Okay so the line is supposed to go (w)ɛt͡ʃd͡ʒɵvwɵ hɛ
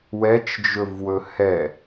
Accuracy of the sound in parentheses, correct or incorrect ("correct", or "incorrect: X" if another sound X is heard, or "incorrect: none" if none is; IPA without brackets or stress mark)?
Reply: correct